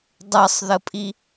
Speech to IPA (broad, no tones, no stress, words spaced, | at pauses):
dˤɤsˤðəpʼi